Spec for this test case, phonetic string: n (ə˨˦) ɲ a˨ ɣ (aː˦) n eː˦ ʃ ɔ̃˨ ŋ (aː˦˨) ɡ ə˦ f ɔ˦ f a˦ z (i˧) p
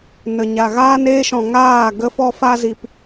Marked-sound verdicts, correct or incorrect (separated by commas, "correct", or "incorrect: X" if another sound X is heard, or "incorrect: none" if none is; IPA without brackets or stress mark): incorrect: ə˨, correct, correct, correct